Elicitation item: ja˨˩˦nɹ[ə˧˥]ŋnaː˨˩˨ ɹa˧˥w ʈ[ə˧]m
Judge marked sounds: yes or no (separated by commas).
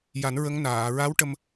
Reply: yes, yes